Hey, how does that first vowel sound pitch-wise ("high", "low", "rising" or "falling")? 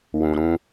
low